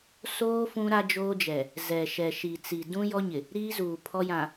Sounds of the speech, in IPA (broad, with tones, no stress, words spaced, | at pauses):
soː˦ fũ˦ɾa˦d͡ʒoː˦d͡ʒɛ˨ | zɛ˨ʃɛ˨ ʃi˨t͡si˨ dũ˦jɔ˦ɲɪ˨ | ɾiː˦zuː˨ pʰɔ˦jã˨